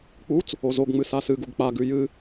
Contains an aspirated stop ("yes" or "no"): no